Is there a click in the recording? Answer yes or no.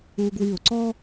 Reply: yes